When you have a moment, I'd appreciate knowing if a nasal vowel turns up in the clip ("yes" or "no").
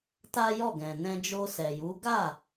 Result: yes